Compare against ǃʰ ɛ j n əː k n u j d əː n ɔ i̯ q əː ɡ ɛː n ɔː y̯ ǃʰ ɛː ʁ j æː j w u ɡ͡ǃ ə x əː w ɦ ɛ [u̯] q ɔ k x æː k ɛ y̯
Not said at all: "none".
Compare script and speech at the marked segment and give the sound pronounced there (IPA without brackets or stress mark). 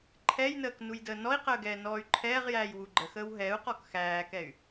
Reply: u̯